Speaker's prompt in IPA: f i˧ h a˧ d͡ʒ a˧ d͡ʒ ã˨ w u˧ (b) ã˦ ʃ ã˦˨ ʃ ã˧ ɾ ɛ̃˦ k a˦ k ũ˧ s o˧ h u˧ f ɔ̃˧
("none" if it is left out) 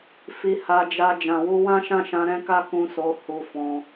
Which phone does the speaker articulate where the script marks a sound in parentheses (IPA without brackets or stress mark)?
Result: w